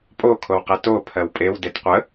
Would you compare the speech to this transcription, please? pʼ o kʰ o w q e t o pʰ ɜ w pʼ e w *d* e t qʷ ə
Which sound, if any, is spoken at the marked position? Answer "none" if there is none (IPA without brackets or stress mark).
d